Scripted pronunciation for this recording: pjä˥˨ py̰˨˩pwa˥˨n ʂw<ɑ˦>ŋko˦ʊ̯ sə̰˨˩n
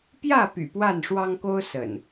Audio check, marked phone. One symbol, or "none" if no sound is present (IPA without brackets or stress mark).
ɑ˦